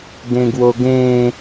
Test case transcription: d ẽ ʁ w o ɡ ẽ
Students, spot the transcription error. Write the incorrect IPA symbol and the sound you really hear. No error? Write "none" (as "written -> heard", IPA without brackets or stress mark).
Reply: ʁ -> ɡ